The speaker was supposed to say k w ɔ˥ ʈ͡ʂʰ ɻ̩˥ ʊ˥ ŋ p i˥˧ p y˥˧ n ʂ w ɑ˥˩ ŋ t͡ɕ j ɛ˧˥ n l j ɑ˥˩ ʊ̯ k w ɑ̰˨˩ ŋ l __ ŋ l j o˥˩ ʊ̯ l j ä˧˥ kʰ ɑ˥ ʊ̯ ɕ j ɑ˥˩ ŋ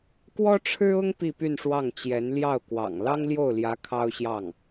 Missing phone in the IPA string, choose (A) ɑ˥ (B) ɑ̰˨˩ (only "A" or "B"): A